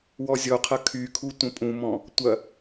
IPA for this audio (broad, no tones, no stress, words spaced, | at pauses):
wɔzʲɔqʰɐ kʰykʰu tʷə̃pʼũmɔ̃ | tʷɐ